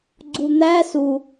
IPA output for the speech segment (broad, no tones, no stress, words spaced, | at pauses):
ɡ͡ǀun̪æ su